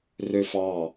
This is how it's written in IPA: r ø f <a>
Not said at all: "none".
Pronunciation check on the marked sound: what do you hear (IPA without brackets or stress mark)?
ɑ